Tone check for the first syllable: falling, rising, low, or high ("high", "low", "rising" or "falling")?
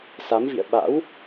rising